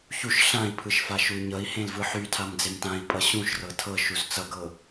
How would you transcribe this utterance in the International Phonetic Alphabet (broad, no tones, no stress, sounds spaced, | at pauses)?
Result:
ç u ʃ ɬ ã i̯ pʰ ɯ ʃ f a ʃ u y̯ ɲ ʌ i̯ h ẽ l v ɯ ħ y tʰ a m d͡z e m t ã i̯ pʼ ʌ ɕ ũ ʃ r ɤ tʰ ɤ ʃ u z t͡s ʌ ɡ ɤ